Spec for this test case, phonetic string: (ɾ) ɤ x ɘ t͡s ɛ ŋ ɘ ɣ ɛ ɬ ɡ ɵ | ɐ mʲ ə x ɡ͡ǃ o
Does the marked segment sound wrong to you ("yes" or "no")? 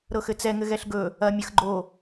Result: no